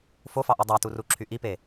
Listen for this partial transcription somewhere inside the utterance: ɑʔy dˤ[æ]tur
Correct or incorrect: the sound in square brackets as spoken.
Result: correct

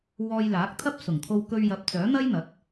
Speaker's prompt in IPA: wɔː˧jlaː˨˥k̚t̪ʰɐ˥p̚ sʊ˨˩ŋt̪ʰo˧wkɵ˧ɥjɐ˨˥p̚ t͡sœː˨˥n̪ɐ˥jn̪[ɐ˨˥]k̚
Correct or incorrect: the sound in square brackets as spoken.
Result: correct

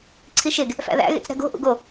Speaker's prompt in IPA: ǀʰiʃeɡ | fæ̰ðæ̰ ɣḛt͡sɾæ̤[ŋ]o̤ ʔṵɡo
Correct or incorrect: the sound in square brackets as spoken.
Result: incorrect: ɡ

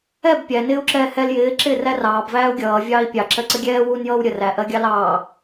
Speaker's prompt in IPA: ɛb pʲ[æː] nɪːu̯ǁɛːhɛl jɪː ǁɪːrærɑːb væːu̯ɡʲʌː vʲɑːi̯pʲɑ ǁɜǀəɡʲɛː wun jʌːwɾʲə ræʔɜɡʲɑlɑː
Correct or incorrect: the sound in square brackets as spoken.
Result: incorrect: æ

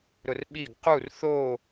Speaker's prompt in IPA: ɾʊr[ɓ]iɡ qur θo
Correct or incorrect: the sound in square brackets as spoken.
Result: correct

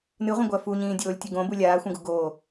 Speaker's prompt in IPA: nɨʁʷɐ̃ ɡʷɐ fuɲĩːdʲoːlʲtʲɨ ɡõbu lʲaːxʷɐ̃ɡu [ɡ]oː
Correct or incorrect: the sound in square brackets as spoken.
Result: correct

